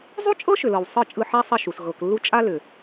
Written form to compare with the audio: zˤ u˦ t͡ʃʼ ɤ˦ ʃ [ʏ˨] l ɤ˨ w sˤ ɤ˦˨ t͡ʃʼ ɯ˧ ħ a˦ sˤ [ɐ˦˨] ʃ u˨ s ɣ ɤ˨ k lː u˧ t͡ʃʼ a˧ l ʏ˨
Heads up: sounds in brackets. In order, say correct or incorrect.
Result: correct, correct

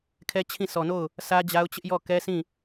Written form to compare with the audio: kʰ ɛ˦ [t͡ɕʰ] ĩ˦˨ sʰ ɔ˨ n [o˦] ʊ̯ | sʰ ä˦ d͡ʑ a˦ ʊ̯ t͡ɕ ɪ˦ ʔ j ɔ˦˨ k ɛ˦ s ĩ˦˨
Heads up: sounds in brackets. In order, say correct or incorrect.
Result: correct, incorrect: o˦˨

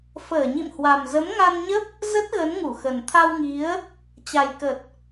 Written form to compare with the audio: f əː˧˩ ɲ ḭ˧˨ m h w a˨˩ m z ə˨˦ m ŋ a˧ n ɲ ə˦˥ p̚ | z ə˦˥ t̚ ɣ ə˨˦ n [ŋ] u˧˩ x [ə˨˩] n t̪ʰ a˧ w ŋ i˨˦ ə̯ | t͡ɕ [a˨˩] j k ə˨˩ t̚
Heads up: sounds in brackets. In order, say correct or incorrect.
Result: correct, correct, correct

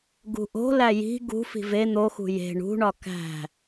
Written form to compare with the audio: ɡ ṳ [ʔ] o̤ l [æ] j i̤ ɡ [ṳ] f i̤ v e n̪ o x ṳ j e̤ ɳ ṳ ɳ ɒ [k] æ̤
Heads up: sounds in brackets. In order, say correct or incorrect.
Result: correct, correct, correct, correct

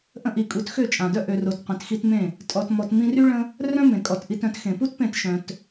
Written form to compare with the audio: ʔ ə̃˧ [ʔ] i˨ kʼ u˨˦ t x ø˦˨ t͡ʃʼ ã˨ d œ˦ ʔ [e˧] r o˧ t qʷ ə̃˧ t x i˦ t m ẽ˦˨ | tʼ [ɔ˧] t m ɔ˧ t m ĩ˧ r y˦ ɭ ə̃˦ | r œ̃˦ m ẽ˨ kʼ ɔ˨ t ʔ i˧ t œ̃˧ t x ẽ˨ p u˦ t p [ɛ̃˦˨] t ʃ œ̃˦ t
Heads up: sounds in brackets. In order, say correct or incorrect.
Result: correct, incorrect: ø˧, correct, incorrect: ẽ˦˨

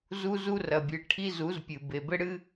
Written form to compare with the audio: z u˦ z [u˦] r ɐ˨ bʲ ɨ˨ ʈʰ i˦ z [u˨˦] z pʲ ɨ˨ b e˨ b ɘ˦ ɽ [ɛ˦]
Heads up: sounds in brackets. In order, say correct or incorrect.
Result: correct, correct, incorrect: ɨ˦

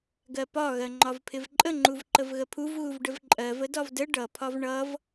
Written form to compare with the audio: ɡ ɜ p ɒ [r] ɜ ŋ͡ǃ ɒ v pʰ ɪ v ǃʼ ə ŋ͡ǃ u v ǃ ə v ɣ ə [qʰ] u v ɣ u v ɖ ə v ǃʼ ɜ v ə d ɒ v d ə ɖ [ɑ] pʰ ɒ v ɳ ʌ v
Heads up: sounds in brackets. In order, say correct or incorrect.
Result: incorrect: ɣ, incorrect: pʰ, incorrect: ʌ

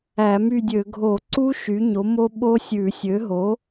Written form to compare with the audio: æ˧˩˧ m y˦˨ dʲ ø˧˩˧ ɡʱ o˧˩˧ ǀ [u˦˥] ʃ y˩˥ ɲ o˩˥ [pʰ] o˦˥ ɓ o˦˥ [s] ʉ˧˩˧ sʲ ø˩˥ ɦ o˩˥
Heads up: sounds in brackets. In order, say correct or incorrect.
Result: correct, incorrect: m, incorrect: sʲ

